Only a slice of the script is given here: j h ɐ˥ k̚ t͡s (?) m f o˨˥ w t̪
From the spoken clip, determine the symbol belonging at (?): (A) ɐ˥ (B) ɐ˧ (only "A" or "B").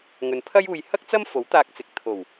A